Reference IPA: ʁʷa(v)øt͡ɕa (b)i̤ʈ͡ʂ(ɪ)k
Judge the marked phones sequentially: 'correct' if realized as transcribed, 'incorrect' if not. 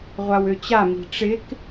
incorrect: w, incorrect: m, correct

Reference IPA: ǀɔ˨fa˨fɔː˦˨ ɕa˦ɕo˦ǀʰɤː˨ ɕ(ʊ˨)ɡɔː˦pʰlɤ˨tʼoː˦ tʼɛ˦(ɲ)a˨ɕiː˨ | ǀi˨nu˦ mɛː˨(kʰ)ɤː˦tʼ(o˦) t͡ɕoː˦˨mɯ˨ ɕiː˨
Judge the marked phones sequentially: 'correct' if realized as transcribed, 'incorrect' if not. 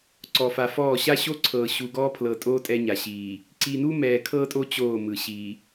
incorrect: u˨, correct, correct, correct

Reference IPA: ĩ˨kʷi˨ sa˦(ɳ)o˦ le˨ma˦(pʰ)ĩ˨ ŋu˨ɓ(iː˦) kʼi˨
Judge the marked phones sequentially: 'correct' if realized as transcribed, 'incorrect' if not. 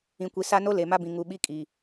incorrect: n, incorrect: b, incorrect: i˦

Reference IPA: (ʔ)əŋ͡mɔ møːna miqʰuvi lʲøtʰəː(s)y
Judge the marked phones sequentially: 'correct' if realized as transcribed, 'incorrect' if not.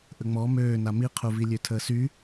correct, correct

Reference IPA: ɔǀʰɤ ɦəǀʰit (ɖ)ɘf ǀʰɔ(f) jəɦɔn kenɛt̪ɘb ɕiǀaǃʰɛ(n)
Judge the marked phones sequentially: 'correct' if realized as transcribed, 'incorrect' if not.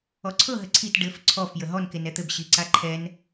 correct, correct, correct

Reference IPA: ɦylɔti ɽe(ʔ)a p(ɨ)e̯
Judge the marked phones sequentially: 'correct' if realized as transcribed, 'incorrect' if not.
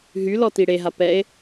incorrect: ɦ, incorrect: ɛ

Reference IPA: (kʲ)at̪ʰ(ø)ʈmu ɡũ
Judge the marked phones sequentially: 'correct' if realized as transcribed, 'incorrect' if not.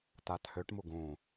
incorrect: t̪, correct

